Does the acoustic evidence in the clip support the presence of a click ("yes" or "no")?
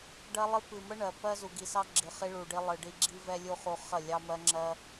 yes